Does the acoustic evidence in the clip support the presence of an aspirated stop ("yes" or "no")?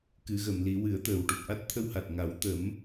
yes